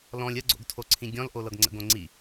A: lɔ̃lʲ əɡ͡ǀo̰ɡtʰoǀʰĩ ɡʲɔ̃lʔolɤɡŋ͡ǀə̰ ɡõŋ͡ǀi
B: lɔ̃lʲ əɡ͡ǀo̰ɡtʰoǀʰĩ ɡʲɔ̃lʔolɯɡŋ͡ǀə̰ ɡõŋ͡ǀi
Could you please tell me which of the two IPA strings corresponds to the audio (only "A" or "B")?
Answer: A